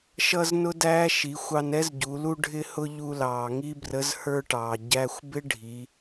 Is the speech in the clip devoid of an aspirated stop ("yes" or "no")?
yes